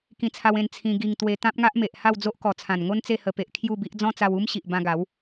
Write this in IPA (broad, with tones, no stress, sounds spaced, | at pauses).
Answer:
k ĩ˧ t͡sʰ a˧ w ẽ˧ n t͡sʰ ĩ˧ ɡ i˧ ŋ t̪ w e˧ t̪ ã˦ p̚ ŋ a˦ ʔ m e˨ ʔ h a˥˧ w d͡z o˦ ʔ k ɔ˨˩ t͡sʰ ã˨˩ n ŋ o˦ n t͡s e˥˧ h ə˧ p e˨ ʔ kʰ j u˥˧ b i˦ ʔ d͡z ɔ̃˦ t͡s a˧ w u˦ m ɕ i˨ ʔ b ã˧ ɡ a˨˦ w